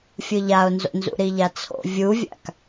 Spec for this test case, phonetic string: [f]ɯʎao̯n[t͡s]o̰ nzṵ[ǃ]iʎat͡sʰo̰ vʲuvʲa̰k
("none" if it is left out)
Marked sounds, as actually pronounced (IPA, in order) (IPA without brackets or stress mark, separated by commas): fʲ, z, ɾ